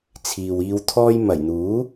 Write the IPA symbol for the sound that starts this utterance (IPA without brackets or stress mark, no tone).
t͡sʰ